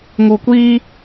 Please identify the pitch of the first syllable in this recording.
low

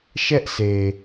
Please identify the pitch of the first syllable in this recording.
high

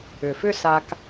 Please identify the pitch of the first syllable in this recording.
low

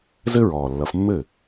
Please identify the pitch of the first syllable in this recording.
high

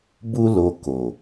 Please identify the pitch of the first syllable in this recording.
high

